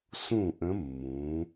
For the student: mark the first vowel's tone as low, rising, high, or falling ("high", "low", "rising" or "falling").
falling